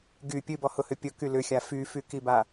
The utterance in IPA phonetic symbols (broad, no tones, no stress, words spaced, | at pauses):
ɡy pʲɨbɔhʊhʏ pʲʊky lʏxʲa fyfykiba